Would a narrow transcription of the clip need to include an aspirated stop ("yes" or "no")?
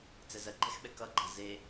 no